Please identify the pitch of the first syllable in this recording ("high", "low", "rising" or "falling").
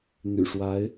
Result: low